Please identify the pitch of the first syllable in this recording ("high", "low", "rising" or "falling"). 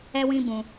high